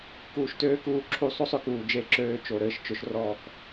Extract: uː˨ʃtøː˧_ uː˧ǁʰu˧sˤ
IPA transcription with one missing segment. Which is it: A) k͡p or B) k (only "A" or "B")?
B